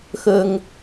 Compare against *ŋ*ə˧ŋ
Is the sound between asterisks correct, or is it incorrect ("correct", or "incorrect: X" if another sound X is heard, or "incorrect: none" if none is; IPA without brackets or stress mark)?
incorrect: x